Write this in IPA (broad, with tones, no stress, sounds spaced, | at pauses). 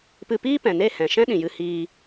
p ɨ˧ p iː˦ p ɛ̃˨ n e˦˨ h ɛ̃˨ ʃ ɛ̃˦ ɗ ĩ˨ j ɨ˧ h iː˧